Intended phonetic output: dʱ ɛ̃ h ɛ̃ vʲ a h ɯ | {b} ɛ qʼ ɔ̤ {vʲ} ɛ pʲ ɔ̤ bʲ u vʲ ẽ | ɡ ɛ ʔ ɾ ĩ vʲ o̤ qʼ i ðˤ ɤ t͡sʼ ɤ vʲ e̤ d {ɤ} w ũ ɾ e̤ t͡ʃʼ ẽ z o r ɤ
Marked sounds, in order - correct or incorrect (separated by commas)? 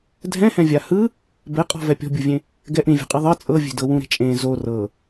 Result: correct, incorrect, correct